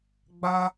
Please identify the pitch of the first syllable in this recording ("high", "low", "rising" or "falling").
high